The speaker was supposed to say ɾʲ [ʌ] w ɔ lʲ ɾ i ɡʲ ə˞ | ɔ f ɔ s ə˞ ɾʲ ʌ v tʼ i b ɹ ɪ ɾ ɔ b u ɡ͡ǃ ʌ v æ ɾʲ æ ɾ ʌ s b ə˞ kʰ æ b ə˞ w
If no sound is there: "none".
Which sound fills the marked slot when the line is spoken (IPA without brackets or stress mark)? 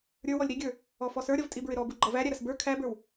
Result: ə˞